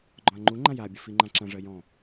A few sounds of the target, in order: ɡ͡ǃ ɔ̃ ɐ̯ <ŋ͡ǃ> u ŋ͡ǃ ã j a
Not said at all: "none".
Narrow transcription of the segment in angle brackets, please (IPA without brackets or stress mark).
ŋ͡ǃ